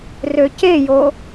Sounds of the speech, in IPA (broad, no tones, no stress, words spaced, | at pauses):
røcejo